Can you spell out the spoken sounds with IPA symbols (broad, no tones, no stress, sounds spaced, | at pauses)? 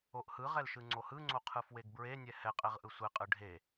o ʔ h ɯ ʁ ɛ l ʃ ɯ ŋ͡ǀ o h ɯ ŋ͡ǀ o qʰ ɯ f w e ɡ b ɹ e nʲ ɛ h ɛ qʼ ɛ ʁ ʔ ɯ sʷ e qʼ ɯ ɖʱ e